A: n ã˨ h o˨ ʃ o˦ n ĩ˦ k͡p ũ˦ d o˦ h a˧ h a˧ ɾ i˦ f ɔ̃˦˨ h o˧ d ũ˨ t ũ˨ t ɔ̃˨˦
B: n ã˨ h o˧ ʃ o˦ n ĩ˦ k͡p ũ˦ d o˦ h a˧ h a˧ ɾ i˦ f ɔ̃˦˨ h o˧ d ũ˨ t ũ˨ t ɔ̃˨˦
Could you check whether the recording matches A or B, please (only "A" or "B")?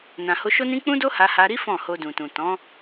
B